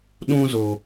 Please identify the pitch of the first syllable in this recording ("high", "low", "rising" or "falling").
high